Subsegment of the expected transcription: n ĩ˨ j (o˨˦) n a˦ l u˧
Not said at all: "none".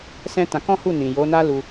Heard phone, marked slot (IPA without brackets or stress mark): o˨˦